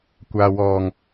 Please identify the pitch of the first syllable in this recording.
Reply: low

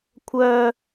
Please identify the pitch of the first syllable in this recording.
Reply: high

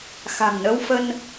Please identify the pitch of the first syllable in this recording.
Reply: low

